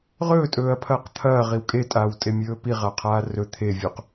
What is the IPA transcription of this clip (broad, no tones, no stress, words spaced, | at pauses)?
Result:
ʁɵːtʼɵːɐ̯pʰɐːq t̪ʰɐːʁiw kʼetʼaːwtʼemʲɵː piʁaqʰaː rɵ t̪ʰevʲuq